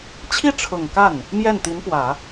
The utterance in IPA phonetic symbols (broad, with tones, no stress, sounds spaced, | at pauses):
t͡ɕʰ i˥˩ ʈ͡ʂʰ ʊ˨˩ ŋ k a˥˩ n | m j ɛ˥˩ n t̪ i˧˥ n p w ä˨˩˦